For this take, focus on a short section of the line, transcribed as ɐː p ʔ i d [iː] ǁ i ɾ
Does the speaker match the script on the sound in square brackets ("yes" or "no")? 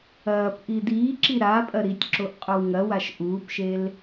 yes